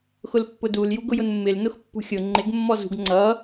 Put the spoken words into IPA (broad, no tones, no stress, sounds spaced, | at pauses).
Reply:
x ʊ l pː ʊ d u l j u ɡ ʊ j ʊ n mː ɪ l n ʊ x pː ṳ xʲ ʊ ŋ͡ǃ ɪ ɡ mː ɔ z ṳ ɡ ŋ͡ǀ ʌ